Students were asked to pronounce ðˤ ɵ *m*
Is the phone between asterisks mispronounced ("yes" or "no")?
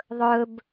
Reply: yes